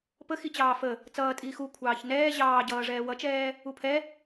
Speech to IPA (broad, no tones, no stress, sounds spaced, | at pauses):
p ə x i t͡ɕ ɑː f ə | t͡s ʌː tʼ iː x u kʷʰ ɑː ç n ɛː ʑ ɑː ɟ ʌː ʐ ɛː w ʌ t͡ʃ ɛː | u pʰ ɛ